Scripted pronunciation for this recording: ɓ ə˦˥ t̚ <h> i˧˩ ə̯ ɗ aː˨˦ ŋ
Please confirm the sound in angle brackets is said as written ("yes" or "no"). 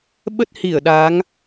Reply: yes